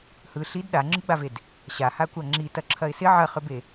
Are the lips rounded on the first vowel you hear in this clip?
no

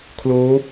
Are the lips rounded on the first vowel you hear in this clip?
yes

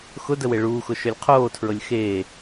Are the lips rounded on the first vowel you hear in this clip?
yes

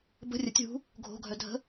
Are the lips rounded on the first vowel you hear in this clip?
no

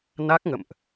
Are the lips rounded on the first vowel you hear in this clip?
no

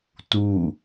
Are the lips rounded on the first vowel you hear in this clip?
yes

